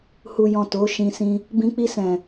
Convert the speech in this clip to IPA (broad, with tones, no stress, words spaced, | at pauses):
hu˨jɔ̃˨ to˨˦ʃĩ˧sĩ˧ | bĩ˧k͡pi˧sɛ̃˨